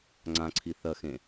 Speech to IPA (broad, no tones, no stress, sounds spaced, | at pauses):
ŋ͡ǀ ã ǀʰ i θ ɐ x ẽ